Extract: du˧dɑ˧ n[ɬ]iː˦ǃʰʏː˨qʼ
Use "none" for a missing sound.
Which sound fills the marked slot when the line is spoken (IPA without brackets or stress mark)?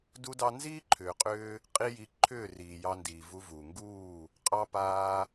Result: z